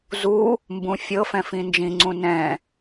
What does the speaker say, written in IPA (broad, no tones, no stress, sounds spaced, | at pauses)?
z u | m b ũ fʲ ɤ f ɛ̃ f ĩ n d͡ʒ ĩ ŋ͡ǀ ũ n ɛ̃